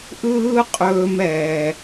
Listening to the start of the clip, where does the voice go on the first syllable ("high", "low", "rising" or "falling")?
high